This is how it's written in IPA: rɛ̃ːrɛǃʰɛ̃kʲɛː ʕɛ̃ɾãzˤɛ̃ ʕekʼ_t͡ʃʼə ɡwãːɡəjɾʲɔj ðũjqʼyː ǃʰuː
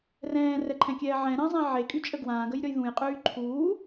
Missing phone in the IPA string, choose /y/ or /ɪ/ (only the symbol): y